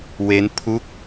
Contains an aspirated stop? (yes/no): yes